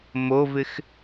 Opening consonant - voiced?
yes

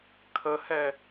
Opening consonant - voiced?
no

